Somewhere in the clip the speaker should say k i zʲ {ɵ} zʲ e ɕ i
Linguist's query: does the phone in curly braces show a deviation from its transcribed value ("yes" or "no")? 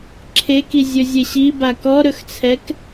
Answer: no